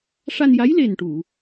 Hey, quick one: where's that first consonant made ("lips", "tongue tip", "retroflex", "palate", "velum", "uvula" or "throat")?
retroflex